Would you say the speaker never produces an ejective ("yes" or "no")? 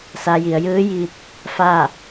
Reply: yes